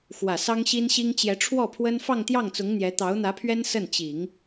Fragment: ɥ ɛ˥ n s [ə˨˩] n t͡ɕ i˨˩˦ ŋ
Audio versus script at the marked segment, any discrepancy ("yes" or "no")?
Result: yes